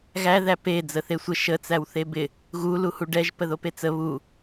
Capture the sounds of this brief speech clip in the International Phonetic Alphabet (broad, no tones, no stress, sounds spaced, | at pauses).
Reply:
ɣ æ ð æ p e d͡z ə θ e sʷ ə ʃ ə t͡s æ w θ e b ɪ | ɣ u l u h u ɖ ɛ ʒ p ə ð o p e t͡s ə β u